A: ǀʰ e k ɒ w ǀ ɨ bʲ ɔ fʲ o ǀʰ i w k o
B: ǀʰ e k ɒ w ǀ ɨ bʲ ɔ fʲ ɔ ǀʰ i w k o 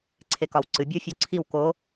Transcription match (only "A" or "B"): A